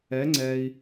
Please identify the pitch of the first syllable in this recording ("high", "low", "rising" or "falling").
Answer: rising